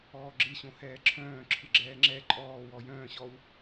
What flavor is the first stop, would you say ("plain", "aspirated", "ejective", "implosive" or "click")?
click